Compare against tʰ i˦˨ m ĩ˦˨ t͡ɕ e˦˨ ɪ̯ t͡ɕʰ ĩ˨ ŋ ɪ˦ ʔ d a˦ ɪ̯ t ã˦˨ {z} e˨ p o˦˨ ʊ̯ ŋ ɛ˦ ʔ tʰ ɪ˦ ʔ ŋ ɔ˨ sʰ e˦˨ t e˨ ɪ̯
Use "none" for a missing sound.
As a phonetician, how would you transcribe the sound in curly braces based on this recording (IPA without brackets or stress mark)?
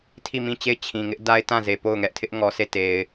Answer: z